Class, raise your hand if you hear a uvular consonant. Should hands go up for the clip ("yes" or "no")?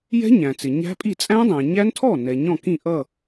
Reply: no